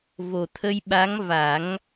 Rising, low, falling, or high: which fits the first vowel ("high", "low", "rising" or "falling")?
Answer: low